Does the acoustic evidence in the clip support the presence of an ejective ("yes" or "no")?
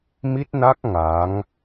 no